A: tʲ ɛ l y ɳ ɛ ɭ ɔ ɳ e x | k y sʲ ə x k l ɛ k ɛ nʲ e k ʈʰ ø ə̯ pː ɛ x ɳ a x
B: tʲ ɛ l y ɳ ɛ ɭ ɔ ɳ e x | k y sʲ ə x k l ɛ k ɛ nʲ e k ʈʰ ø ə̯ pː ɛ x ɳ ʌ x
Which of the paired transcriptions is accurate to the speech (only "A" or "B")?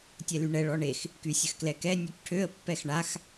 A